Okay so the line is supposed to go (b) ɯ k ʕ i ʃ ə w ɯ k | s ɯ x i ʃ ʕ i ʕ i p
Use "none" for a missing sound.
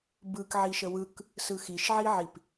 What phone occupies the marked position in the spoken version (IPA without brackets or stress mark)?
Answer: b